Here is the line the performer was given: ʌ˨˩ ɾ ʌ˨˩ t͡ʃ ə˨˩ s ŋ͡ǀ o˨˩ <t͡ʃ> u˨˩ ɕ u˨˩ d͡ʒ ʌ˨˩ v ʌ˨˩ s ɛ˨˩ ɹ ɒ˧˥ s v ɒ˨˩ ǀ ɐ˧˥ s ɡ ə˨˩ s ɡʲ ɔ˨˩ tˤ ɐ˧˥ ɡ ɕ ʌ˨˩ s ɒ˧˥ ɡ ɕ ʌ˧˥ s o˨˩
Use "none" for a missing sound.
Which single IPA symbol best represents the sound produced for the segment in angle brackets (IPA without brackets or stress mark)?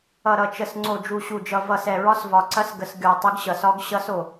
d͡ʒ